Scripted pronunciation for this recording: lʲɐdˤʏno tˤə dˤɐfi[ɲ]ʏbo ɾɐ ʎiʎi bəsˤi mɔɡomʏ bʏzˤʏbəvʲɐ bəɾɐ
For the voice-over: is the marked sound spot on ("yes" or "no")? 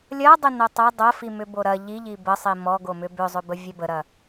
no